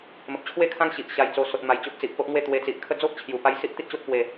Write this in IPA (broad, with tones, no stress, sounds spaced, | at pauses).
m ə˨ p̚ t͡ɕʰ w e˥˧ kʰ ã˦ ŋ ɕ i˨ ʔ ɕ a˧ j t͡s o˧ s o˨ t̚ m a˨˩ j t͡ɕ o˦ ʔ t͡s i˨ ʔ p o˦ ʔ ŋ w e˥˧ t̪ w e˧ t͡s i˨ ʔ kʰ ə˥˧ d͡z o˦ ʔ t͡ɕʰ j u˨˩ p a˧ j s i˦ ʔ t̪ i˦ t̚ ɕ o˦ t̚ p w e˥˧